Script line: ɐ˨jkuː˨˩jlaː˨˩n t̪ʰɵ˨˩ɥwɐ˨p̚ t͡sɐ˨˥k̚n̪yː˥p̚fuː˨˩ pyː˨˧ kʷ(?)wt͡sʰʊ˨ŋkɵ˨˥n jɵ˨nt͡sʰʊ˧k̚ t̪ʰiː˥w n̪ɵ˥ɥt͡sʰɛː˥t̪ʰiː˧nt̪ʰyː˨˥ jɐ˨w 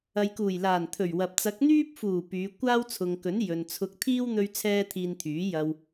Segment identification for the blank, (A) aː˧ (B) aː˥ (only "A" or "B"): B